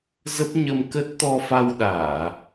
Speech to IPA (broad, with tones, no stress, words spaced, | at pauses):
zə˦˥p̚ɲə˧mkə˦˥t̚ t̪ɔ˧fa˧w ɗaː˧˩˨